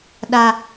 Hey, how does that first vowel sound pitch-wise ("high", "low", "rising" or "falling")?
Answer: high